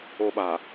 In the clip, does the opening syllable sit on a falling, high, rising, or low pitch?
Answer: high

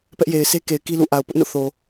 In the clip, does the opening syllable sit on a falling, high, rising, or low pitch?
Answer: high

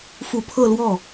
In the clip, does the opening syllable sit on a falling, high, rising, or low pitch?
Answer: low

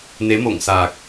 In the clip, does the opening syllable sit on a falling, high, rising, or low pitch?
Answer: rising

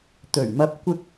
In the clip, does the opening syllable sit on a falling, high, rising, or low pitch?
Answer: low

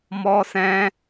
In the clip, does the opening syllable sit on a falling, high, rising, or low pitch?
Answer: high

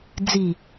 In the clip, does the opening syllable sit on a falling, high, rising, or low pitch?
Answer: low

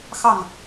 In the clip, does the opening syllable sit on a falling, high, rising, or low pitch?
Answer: falling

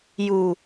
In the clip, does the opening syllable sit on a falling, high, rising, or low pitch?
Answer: low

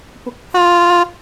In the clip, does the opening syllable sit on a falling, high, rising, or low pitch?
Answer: rising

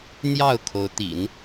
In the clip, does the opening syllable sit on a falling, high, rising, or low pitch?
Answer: falling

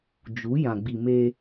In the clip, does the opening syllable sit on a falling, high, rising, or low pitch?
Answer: rising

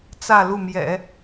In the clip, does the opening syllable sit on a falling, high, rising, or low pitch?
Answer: falling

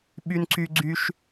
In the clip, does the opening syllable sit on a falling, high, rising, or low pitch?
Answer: high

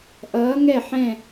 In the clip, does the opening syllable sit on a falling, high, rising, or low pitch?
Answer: rising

